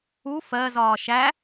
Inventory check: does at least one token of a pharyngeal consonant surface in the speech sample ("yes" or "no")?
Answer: no